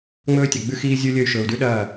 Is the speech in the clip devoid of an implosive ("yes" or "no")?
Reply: no